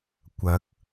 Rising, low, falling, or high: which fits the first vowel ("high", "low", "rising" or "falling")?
rising